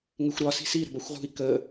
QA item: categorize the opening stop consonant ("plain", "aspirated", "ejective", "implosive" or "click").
plain